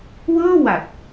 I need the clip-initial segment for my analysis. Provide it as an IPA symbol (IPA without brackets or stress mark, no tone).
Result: w